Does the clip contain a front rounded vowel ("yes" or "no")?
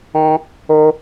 no